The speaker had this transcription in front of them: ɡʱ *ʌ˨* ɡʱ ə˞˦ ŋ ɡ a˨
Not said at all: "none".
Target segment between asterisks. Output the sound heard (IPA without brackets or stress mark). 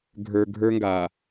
ə˞˨